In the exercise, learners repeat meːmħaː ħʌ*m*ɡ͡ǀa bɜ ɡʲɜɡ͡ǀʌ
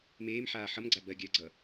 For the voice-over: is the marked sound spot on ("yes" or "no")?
yes